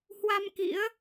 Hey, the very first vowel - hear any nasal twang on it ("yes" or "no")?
no